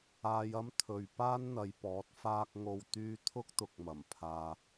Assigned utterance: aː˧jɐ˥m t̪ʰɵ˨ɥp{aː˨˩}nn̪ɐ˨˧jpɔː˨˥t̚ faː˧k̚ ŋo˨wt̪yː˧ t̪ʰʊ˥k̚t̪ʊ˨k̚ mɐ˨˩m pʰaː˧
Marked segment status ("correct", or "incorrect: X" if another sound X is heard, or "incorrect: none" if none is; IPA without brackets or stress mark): incorrect: aː˥